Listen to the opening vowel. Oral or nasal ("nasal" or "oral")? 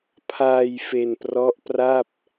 oral